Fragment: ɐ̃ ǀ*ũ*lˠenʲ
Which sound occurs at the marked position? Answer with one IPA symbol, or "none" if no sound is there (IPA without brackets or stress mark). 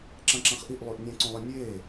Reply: õ